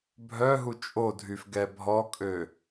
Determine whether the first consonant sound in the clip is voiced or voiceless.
voiced